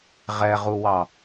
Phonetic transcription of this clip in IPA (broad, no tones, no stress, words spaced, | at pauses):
ʁɛʁuwɑ